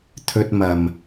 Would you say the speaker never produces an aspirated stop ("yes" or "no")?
no